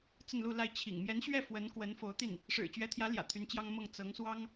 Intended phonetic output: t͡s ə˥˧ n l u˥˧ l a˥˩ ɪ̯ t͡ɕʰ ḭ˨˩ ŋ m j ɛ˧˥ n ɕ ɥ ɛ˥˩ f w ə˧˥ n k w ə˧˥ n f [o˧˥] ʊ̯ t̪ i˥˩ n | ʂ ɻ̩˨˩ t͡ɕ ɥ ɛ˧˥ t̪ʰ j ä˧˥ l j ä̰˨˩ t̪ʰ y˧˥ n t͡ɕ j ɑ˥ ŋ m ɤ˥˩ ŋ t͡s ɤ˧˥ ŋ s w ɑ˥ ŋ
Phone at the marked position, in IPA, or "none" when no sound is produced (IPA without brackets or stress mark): o˧˥